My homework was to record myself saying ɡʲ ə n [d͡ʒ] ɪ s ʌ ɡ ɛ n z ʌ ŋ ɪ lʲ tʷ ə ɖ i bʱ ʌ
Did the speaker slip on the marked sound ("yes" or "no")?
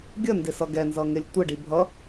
yes